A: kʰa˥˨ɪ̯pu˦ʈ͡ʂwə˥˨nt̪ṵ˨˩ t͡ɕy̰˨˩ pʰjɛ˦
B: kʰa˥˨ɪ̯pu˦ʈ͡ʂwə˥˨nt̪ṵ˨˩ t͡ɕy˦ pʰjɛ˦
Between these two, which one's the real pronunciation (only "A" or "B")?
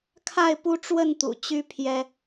B